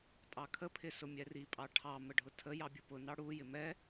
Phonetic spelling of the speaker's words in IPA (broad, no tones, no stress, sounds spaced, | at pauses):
tʼ ɑ kʰ ə pʰ ɪ s ʊ mʲ ɛ r i pʼ ɑ ʈʰ ɑ m ə ɖʱ ʊ tʰ ə j ɑ bʲ u p ʊ n ɑ ɽ u j ɪ m ɛ